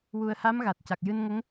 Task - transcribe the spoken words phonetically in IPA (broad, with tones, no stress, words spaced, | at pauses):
wu˨˩ə̯ha˧˥m ɣa˨˩t̚ca˨˩k̚ jɨ˧nŋə˧˥ŋ